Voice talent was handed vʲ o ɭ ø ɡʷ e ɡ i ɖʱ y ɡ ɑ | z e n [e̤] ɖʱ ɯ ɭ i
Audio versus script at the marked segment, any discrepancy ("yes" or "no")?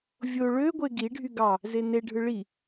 yes